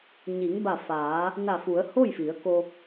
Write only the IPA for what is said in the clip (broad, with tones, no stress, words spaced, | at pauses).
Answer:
ɲi˩˧ŋ ba˧˩faː˩˧ | na˧˩fu˩˧ə̯ ho˥˨jfi˩˧ə̯ko˧